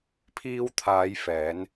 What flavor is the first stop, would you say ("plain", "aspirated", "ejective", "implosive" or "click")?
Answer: aspirated